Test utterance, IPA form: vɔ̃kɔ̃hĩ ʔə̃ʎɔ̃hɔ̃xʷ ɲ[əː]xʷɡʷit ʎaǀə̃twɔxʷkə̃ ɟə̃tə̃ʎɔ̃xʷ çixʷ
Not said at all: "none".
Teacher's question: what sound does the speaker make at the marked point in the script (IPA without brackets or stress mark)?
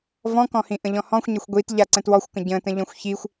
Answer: ə